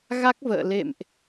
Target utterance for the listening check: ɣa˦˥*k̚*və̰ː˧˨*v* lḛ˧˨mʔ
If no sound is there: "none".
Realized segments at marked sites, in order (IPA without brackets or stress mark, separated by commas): k̚, none